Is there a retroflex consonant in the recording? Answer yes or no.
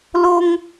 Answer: no